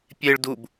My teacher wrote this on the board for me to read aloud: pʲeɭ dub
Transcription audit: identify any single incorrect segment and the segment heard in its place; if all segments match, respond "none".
none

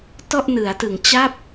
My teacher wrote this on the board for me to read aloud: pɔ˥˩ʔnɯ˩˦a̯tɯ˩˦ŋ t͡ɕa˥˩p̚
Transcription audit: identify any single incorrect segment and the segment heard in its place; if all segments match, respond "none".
p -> t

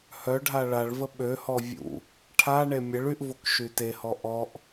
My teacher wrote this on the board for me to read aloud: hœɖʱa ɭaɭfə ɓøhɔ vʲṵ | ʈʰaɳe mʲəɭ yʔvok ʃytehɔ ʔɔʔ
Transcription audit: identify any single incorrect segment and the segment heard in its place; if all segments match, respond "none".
f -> v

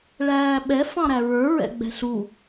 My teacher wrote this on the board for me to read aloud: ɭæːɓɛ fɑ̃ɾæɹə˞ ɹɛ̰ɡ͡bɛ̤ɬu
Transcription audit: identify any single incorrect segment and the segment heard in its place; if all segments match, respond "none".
none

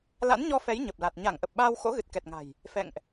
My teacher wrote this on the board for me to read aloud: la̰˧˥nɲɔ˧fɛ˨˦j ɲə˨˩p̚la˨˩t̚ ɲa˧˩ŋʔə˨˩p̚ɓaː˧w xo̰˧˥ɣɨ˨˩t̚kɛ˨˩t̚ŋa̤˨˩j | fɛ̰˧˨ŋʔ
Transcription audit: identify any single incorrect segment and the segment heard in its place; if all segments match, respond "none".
none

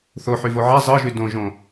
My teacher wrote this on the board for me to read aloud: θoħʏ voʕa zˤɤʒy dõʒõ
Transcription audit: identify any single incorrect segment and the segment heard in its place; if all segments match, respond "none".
ʏ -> y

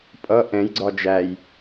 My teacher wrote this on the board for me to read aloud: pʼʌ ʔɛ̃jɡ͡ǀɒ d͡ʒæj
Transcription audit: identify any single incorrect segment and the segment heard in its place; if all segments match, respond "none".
none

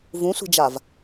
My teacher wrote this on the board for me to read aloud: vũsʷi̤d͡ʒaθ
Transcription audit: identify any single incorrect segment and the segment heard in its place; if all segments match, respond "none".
θ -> v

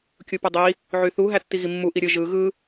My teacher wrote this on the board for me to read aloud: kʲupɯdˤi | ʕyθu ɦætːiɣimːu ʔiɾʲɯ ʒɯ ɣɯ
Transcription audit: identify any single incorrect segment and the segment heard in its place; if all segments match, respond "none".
none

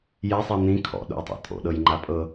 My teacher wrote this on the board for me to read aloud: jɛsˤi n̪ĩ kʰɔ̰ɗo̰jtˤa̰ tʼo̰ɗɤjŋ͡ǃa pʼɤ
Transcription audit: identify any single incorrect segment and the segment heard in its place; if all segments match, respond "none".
none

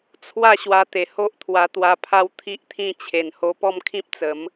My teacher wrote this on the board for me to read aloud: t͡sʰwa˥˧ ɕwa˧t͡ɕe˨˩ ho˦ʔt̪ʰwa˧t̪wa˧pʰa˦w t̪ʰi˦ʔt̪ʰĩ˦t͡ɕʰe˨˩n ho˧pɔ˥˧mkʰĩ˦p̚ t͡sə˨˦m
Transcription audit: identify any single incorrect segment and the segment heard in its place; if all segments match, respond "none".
t͡ɕ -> t̪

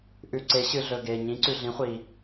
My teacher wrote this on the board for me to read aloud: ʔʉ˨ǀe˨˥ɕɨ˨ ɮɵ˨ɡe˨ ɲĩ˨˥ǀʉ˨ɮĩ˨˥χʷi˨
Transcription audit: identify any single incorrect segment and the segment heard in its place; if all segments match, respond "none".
none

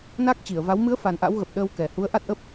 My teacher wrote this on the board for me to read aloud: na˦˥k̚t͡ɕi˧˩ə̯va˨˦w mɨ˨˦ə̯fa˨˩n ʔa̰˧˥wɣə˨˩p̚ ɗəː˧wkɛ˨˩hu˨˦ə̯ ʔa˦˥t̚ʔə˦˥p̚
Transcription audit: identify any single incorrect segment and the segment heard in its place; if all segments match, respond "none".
none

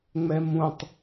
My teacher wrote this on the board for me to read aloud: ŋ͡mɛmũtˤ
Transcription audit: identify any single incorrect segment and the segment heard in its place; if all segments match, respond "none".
none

